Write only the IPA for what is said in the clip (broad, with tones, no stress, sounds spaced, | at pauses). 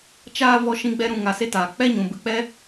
t͡ʃ aː˦ v ɔ˦ ʃ ĩ˦ ɡ͡b ɛ˦ ɾ ũ˧ ŋ a˧ s e˦ t aː˨ k͡p ɛ˦ ɲ ũ˨ b ɨ˧ k͡p ɛ˦